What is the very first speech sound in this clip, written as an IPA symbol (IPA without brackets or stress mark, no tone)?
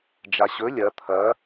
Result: d͡ʒ